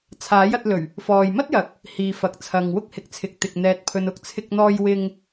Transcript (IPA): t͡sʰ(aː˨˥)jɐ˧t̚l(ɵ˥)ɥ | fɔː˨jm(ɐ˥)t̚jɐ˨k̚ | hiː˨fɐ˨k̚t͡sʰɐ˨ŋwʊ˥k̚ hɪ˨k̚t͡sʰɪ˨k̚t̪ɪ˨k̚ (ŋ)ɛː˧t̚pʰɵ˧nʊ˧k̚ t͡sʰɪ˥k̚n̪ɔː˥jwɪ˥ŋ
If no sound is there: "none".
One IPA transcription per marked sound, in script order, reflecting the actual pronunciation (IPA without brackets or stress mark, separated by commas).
aː˨˥, ɵ˨˩, ɐ˥, n̪